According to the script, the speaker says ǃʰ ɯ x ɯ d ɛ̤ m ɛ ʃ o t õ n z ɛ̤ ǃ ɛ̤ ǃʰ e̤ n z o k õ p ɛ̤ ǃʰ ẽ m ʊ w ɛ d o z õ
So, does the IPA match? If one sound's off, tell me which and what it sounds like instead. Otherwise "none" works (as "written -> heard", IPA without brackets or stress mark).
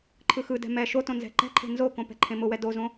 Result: none